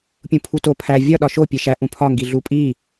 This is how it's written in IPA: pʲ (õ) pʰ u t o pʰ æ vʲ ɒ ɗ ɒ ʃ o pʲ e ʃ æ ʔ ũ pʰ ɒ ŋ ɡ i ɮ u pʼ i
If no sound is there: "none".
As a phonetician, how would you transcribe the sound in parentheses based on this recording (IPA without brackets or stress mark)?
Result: ũ